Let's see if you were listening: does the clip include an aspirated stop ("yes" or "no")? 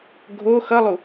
no